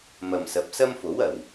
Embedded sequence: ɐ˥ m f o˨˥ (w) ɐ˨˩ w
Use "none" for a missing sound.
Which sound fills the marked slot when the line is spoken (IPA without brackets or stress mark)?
w